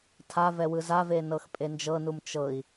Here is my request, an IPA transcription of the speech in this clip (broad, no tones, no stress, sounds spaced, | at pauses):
tʰ a v ɛ w ɯ z a v e n ɤ x pʼ e n d͡ʒ ɤ n u m t͡ʃ ɤ i̯